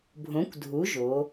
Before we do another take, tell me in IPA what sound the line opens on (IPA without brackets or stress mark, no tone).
bʱ